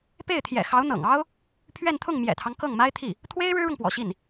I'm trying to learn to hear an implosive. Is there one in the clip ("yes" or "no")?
no